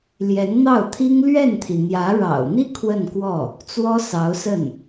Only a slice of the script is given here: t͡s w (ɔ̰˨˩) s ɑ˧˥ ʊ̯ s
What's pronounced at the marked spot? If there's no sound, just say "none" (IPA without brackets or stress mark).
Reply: ɔ˥